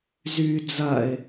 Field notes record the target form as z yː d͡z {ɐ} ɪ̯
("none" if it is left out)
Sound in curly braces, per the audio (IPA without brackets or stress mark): ɐ